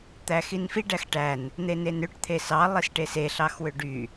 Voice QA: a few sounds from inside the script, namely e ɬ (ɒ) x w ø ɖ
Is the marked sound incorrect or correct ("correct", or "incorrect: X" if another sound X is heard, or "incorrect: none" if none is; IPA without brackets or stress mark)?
incorrect: ɑ